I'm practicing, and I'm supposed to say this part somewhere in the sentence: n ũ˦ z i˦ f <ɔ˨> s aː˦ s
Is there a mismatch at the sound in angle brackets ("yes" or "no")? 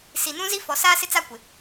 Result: no